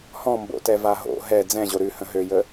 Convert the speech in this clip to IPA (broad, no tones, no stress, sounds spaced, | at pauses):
h ɔ̃ m b o̰ t ɛ v a ɦ o̰ ɦ ɛ d͡z ɛ̃ ʑ o ɾ ʉ h ə̃ ɦ ø j ə